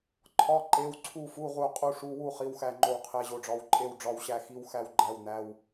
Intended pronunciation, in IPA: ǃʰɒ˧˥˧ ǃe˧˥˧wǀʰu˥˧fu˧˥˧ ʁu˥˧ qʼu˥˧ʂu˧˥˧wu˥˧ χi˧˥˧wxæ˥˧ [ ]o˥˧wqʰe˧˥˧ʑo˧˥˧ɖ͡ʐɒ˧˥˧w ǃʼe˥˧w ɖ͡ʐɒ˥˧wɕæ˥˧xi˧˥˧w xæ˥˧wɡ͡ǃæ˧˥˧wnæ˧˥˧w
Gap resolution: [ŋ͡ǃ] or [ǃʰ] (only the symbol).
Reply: ŋ͡ǃ